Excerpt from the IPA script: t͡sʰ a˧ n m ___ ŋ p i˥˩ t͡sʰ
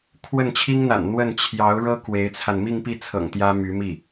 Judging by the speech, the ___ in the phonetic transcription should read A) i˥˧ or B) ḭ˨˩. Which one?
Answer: A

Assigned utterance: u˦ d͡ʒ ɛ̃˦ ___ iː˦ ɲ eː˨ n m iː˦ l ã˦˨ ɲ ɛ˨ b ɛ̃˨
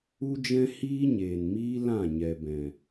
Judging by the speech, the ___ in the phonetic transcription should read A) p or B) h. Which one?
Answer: B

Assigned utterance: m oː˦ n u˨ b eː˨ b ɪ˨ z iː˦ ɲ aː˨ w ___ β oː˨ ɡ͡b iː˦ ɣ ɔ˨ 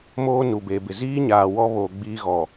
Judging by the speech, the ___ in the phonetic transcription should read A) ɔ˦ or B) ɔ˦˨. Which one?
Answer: A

